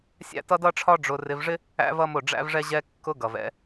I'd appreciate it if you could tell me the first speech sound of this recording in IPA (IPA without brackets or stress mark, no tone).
sʲ